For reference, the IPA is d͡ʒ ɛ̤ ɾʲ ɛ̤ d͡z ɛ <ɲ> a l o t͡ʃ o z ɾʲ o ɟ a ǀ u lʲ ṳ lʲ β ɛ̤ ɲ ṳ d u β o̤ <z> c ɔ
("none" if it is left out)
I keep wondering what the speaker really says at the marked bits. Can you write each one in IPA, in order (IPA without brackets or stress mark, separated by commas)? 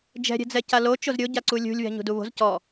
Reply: c, z